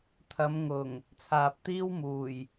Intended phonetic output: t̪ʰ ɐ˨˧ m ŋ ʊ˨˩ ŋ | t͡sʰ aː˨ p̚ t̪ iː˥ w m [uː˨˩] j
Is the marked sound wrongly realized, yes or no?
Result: no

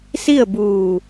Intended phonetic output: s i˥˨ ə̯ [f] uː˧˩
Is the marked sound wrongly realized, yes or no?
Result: yes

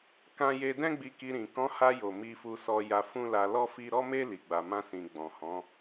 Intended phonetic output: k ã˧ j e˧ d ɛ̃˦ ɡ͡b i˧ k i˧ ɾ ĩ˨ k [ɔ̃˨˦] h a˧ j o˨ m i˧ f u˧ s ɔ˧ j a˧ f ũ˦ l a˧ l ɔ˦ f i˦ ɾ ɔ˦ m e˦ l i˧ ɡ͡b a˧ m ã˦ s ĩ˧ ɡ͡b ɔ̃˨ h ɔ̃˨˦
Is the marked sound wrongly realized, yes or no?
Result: no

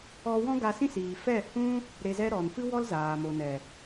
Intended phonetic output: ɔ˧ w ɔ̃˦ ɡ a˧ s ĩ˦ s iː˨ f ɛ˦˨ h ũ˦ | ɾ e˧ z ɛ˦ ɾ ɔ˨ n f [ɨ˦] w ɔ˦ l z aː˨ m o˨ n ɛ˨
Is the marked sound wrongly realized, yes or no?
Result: no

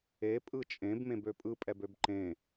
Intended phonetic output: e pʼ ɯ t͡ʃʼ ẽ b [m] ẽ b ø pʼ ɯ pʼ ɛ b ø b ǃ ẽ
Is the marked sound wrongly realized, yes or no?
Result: no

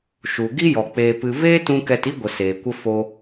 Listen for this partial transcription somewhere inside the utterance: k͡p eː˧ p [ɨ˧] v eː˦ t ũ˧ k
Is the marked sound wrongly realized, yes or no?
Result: no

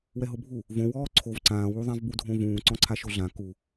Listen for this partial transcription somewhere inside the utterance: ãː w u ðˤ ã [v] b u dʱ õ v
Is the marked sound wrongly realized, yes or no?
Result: no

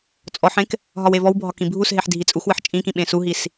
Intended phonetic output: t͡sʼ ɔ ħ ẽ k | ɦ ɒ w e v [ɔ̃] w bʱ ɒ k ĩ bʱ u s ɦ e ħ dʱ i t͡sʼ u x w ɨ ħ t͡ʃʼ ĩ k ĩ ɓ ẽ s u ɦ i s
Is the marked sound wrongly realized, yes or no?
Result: yes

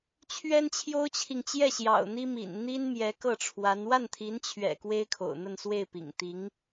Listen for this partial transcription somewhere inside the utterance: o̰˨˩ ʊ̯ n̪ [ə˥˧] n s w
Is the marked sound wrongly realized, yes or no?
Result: no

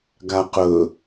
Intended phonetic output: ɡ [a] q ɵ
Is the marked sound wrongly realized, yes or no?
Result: no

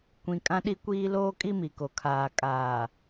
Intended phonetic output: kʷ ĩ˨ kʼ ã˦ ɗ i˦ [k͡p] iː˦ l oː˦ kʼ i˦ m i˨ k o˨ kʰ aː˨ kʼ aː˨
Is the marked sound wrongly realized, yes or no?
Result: yes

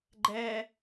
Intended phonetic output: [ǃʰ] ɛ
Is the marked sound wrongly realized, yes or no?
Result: yes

